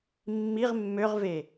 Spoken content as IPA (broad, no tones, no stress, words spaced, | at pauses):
mːiʁ mːøʁve